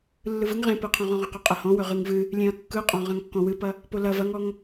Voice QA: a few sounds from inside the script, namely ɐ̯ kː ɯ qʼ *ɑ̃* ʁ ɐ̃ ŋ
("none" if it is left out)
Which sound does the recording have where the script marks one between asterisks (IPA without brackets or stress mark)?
ɔ̃